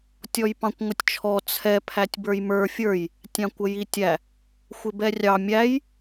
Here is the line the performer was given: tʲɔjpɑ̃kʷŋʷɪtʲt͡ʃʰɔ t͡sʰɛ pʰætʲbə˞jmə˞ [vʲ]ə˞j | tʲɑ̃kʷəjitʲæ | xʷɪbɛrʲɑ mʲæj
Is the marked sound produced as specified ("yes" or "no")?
no